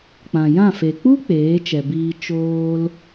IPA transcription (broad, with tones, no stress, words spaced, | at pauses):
k͡pã˨jã˦˨fe˨ k͡pu˦ k͡peː˨˦t͡ʃɛ˨biː˧ t͡ʃoː˧l